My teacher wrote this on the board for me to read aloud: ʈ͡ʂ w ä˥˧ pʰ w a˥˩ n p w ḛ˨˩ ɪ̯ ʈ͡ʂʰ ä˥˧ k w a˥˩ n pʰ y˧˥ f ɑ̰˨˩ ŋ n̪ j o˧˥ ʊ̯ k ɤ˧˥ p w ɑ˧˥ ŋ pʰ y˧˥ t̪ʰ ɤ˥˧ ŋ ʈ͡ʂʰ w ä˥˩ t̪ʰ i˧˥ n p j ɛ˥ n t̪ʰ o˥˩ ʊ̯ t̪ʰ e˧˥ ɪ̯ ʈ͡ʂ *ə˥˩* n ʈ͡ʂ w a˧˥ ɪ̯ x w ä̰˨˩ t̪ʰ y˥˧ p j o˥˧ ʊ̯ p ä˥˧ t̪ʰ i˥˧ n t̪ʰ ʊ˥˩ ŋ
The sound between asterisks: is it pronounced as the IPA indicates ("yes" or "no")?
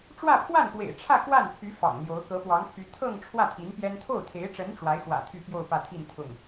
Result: no